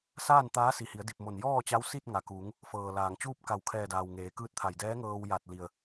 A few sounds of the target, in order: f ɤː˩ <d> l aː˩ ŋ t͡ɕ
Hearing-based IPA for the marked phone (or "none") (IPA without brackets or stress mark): none